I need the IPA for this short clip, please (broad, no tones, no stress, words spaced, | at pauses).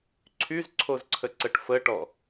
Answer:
ǀʰyzǀʰozǀʰəǀəʈ fəʈɔ